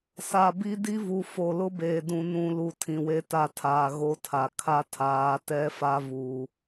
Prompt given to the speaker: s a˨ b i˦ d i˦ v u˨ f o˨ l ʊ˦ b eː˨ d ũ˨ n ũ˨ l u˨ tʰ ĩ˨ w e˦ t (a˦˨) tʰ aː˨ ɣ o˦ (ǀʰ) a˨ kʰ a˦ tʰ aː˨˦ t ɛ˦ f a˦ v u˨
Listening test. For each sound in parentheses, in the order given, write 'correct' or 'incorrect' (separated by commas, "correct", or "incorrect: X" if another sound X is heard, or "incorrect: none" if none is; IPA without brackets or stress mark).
correct, incorrect: tʰ